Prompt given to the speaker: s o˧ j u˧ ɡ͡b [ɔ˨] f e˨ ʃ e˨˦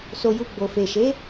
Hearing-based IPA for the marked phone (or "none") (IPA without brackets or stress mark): o˨